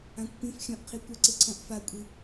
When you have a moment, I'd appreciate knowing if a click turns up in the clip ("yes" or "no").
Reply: yes